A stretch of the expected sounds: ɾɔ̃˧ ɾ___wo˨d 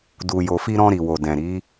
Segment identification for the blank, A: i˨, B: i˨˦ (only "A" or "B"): A